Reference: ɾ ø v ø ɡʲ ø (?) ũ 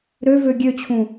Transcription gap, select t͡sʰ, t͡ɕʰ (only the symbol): t͡ɕʰ